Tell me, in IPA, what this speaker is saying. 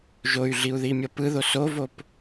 ʒ o y̯ ɮ i u̯ ð i mʲ ʌ p ɯ ð o s o v o p

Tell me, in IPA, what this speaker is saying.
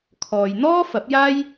kʰ ɔː˨ j n̪ ɔː˥ f ɐ˨˥ p̚ j aː˥ j

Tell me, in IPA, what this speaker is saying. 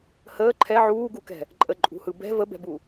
h əː ǃʰ ɛ ʕ uː ɡ u k ɛ̤ | ǃʼ ə ǃʼ ṳ h ɯ b ɛ̤ v ə b ɛ̤ b u

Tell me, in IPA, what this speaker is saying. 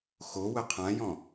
x o w ə qʰ ã j ɔ̃

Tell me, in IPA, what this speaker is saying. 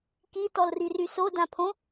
k i t ɔ l r i r y s o d ã pʰ õ

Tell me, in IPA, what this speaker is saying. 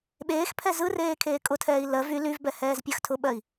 ɓ eː x pʰ ɛ z ɯ r eː kʰ eː kʼ ʊ tʰ ɛː i̯ l ɜ v y l y v b ɛ h ɛː z pʲ ɜ x tʰ ʊ ɓ ɜ i̯

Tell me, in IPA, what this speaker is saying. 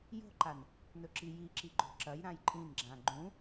j o̤ ǃ a n | n ɵ ǁ i j i ǁ i ɡ͡ǃ o̤ ǁ ɐ j ɾ ã j ǃʼ ĩ n ɡ͡ǁ ã ɡ͡ǃ ũ

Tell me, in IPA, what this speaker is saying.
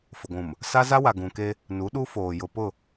f ʊ˨ ɡʷ ũ˨ m | s a˦ z a˦ w a˨ ɡ ũ˨ k e˦ | n u˨˦ ɗ u˦ f oː˨ j ʊ˨ p ʊ˦˨

